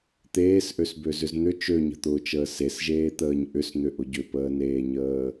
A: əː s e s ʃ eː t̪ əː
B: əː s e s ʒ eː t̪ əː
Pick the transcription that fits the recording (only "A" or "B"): B